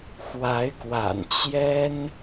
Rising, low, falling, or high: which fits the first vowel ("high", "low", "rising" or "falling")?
rising